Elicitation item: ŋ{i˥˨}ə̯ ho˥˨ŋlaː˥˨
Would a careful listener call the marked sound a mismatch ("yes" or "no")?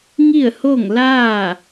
no